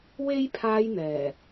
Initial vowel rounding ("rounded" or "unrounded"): unrounded